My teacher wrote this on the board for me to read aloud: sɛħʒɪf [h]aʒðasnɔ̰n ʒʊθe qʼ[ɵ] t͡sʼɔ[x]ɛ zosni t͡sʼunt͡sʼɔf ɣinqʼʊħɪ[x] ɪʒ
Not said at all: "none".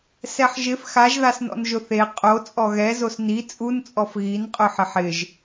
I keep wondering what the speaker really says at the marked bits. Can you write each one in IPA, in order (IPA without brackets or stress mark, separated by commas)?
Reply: x, o, ɣ, ħ